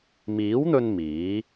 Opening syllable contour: rising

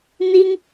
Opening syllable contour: high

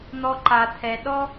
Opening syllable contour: high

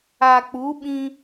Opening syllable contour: low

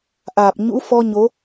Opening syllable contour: low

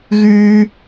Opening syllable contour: high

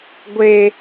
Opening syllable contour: low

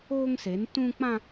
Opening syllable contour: high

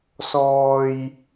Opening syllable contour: low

